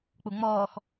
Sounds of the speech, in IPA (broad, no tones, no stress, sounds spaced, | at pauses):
k͡p u ŋ͡m ɔː x